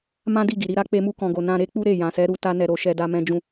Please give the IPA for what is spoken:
m ã˦ d i˦˨ ɡ i˨ ɾ i˨˦ ɾ a˦ k͡p e˧ m u˧ k ɔ̃˨ ɡ o˨ n ã˧ ɾ e˦ k͡p u˦ ɾ e˦˨ j ã˨ s ɛ˨˦ ɾ u˧ t a˦ n ɛ˧ ɾ o˧ ʃ ɛ˦ d a˦ m ɛ̃˦ d͡ʒ ũ˦

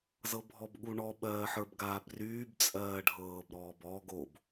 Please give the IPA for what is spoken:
z ɤ bʱ ɔ b ɠ u ɳ ɔ ɓ ɜː ħ ə˞ b ɡ aː b r yː b t͡sʼ ɜː ɖʱ ɤː b ɾ ɔː b ɔ ɡ o b

